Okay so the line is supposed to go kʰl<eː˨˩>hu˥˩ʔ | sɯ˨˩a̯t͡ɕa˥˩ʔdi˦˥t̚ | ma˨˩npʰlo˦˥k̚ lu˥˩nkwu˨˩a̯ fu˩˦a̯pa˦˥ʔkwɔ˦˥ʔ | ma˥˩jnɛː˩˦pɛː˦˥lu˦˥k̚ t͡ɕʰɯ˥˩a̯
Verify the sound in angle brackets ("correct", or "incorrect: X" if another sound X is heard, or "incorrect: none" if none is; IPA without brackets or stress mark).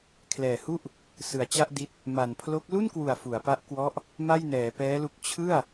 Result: incorrect: ɛː˨˩